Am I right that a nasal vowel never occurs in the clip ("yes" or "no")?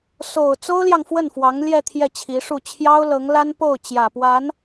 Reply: yes